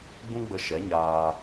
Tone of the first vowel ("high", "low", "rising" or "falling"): high